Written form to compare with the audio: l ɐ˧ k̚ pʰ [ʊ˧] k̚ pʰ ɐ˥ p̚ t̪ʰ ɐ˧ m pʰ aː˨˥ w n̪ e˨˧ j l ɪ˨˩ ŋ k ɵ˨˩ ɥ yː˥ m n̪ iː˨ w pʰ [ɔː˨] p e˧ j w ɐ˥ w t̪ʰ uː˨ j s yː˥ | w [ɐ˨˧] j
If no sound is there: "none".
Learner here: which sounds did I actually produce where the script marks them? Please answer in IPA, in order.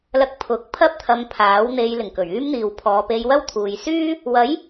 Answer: ʊ˨˥, ɔː˨, ɐ˨˥

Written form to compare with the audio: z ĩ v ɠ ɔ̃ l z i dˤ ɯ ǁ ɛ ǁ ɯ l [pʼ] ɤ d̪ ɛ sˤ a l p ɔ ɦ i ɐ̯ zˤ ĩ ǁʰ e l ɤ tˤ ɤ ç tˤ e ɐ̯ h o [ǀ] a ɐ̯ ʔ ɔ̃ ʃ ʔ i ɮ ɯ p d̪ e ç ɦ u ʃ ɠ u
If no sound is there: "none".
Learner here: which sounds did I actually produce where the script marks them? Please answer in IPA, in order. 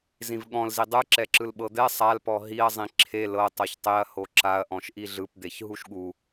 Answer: ɓ, ǁ

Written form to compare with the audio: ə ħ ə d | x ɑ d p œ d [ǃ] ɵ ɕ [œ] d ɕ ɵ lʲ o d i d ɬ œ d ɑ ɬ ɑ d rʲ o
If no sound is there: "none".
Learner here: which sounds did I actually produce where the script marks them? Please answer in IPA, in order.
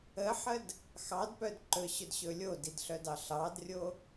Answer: ǃ, ɵ

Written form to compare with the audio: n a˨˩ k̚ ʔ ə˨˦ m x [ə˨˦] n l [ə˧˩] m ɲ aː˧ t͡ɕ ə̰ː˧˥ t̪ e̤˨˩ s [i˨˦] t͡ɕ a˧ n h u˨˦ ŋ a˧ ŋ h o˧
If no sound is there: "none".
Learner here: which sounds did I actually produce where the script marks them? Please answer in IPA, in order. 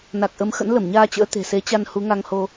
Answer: ə̰˧˥, ə˧˩, e˨˦

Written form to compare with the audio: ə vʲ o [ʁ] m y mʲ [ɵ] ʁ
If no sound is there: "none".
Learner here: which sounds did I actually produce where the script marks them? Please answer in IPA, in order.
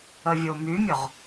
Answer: none, ɵ

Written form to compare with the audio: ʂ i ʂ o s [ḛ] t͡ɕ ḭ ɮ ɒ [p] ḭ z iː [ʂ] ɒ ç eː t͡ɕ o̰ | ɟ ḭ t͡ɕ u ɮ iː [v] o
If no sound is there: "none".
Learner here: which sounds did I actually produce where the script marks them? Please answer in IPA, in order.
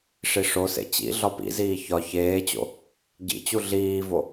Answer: ḛ, p, ç, v

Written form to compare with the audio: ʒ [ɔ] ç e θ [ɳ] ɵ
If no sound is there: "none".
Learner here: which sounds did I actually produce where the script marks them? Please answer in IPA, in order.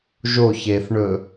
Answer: o, ɳ

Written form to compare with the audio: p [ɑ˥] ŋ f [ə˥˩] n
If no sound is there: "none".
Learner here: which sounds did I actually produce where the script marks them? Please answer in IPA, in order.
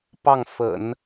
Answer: ɑ˥˩, ə̰˨˩˦

